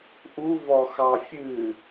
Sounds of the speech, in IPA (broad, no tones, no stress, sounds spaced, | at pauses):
ʔ u v ɔ x ɑ fʲ ɨ